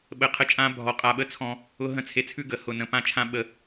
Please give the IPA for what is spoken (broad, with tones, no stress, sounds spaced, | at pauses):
ɓ ə˨ qʰ ə˧ t͡ʃʼ ã˧ bʱ ɔ˨ qʼ a˨ ɓ ə˧ t͡sʰ ɔ̃˧ | ʊ˧ ɦ ə̃˦˨ t͡sʰ e˧ t͡sʰ ʉ˦ ɡ ə˨ h ʊ˨ n ə̃˨ p ã˦˨ t͡ʃʰ ã˦ ɓ ə˧